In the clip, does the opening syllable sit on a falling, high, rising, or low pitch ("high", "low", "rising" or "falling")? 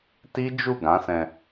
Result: high